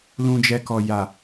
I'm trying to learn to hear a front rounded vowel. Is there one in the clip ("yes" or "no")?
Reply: no